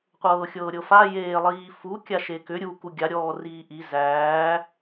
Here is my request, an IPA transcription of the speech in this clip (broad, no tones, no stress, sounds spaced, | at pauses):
qʷ ɤː xʲ ɤː ɾʲ ɤ f a j eː lˠ iː f u kʲ a ʃ e k ʏ ɾʲ u k u ɡʲ a ɾʲ ɔː r iː ʔ i z æː